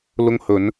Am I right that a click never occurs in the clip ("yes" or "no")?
yes